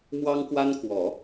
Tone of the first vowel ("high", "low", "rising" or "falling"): high